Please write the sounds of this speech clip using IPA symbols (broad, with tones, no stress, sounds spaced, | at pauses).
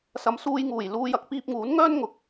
s ɐ˨˧ m s uː˧ j ŋ uː˨˩ j l uː˧ j ɐ˨˥ k̚ p iː˧ p̚ ŋ uː˨˥ n ŋ œː˥ n ŋ ʊ˧ k̚